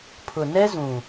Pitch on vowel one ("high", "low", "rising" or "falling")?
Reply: low